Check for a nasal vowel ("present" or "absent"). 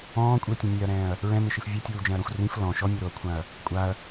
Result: present